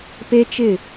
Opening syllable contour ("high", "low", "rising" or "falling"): high